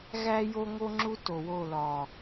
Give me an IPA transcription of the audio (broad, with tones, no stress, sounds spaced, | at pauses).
ɣ æ˦ j o˦ ŋ o˦ ŋ͡ǁ u˦ t o˨ w o˦˨ l ɒ˨